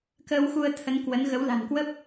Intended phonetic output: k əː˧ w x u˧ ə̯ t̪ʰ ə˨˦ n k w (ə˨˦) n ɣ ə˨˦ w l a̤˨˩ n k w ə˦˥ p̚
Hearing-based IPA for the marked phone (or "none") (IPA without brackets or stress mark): ə˨˦